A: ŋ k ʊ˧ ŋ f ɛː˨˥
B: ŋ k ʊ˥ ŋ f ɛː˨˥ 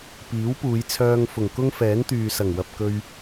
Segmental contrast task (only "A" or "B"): B